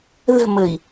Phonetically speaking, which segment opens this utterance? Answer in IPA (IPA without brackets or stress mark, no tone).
ð